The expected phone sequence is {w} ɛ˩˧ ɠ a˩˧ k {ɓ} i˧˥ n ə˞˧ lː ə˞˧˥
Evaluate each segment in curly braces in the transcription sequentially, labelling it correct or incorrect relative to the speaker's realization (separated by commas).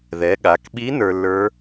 incorrect, correct